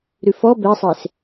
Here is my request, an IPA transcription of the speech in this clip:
ɾ ʉ f ɔ b ɛ sˤ e s

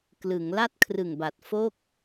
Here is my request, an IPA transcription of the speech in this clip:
k l ɯ˩˦ ŋ l a˥˩ t̚ kʰ r ɯ˨˩ ŋ b a˨˩ t̚ f o˥˩ k̚

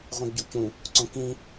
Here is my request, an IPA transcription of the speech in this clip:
ʁʷ ĩ ɡ ɟ u c ũ | ǀ õ k ĩ

